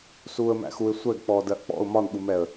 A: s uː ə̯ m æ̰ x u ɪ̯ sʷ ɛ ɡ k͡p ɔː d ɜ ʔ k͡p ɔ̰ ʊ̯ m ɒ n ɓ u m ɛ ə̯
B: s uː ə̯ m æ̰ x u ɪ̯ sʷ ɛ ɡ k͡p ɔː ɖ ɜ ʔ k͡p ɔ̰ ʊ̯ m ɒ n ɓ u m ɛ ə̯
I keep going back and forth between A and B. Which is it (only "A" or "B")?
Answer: A